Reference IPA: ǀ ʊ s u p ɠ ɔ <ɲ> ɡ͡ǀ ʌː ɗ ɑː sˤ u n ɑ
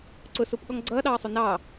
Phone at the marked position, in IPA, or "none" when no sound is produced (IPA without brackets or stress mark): ŋ